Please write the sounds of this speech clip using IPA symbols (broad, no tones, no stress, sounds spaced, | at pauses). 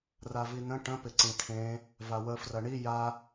r a v i n ə̃ ʈ ə̃ p ɪ ǀ ĩ tʰ ẽ | v a w ə f r ɐ ɳ i j a